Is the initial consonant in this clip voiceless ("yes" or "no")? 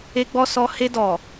no